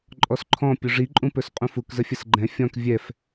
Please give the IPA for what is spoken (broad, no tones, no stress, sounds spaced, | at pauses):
ǃʼ ɔ s ǃʰ ɔ̃ pʲ u ʐ i ǃʼ ũ p ɵ s qʼ ũ f u k z ə fʲ ə s ɡ͡ǃ ɛ̃ fʲ ɔ̃ k vʲ ɛ f